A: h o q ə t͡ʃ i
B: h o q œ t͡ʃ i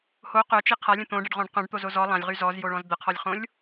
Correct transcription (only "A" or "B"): B